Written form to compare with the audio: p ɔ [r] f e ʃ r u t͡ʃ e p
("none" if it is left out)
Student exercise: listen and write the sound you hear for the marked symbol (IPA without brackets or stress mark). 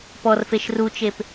r